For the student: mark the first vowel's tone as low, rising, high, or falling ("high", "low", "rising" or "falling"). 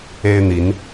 high